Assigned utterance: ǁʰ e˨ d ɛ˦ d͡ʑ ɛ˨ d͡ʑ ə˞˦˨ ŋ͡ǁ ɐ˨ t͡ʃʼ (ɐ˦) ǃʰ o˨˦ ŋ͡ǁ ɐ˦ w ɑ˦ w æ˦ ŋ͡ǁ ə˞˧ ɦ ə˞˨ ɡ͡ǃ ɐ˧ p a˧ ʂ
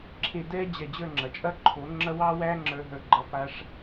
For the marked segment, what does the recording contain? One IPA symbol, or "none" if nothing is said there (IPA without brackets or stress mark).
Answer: ɐ˦